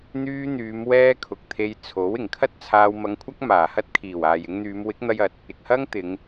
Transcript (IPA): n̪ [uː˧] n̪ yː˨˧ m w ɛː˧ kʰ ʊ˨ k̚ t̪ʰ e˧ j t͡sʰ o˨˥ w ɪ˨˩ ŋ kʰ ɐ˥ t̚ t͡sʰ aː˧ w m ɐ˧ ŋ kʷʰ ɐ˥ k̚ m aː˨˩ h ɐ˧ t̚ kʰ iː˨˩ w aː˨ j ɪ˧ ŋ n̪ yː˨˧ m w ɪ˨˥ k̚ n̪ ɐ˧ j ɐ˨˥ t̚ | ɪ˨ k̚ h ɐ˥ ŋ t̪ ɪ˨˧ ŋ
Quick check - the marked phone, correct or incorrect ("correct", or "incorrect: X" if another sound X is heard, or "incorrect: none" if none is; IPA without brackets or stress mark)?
incorrect: yː˧